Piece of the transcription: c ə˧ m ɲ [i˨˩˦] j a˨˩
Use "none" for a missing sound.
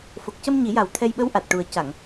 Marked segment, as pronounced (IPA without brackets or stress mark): i˨˩˦